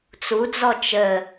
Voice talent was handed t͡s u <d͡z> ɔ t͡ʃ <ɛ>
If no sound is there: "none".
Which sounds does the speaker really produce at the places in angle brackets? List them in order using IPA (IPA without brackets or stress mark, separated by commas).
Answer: d͡z, ə